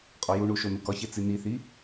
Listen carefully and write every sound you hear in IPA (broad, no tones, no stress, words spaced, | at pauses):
qʼɒjuɳu ʃonukɒçe t͡siniθi